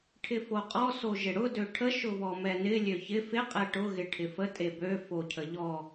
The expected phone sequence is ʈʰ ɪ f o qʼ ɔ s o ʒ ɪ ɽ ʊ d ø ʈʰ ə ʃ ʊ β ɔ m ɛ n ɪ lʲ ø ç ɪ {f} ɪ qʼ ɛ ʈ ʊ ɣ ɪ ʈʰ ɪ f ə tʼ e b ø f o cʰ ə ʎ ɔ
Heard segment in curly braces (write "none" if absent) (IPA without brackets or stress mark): f